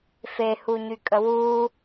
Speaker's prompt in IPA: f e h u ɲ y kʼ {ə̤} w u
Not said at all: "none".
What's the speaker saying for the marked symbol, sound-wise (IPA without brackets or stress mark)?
ə